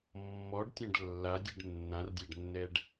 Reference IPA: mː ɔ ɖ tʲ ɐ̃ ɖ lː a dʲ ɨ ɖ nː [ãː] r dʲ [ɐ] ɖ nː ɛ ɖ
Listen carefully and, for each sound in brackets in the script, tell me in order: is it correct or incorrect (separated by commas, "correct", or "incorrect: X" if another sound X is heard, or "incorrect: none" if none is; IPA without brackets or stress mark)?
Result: incorrect: ã, incorrect: a